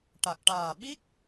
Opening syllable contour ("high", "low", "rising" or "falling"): low